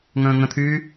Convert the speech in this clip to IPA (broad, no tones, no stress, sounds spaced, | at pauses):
ŋ ə̃ː ŋ ə̃ t̪ʰ yː